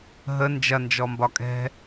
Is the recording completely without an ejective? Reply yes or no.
no